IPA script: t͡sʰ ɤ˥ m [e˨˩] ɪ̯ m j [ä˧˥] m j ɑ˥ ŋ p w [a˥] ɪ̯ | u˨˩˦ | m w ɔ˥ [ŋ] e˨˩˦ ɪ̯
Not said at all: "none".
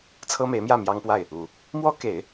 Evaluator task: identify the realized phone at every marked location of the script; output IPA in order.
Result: e˧˥, ä˥˩, a˥˩, k

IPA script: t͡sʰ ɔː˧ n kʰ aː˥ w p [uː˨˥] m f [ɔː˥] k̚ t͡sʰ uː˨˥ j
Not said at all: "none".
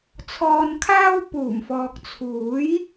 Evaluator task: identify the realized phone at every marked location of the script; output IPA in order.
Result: uː˨˩, ɔː˨

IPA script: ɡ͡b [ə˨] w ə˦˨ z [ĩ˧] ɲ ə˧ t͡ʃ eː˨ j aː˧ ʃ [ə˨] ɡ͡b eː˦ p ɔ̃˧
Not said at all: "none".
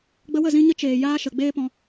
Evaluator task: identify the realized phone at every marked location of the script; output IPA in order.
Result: ə˧, ĩ˧, ə˨

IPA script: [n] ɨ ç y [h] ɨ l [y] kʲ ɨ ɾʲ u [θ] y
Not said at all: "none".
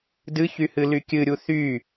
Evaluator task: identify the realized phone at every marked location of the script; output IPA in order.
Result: d, h, y, θ

